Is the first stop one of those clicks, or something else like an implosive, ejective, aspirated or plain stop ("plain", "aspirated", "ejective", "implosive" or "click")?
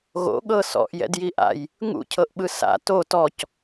implosive